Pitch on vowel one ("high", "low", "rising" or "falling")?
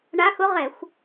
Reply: rising